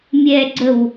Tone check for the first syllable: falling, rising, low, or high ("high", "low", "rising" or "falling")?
low